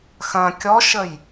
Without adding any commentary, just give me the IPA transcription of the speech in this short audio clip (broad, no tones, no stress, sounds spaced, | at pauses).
x ɐ̃ kʲ ɔ ʃ ə j